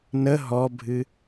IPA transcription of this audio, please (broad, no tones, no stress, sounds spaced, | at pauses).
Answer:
n ə ɦ ɔ bʱ ɨ